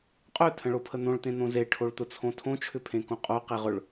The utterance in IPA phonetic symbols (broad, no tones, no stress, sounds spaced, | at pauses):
qʼ œ tʰ ə̃ ɭ o pʰ ə n̪ õ ɭ t̪ ẽ n̪ õ z e ʈʰ o ɭ t̪ ʊ t͡sʰ õ tʰ õ t͡ʃʰ ʏ pʰ ẽ k õ qʼ o q e ʁ ʊ ɭ